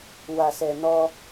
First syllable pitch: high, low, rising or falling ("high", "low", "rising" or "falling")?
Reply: low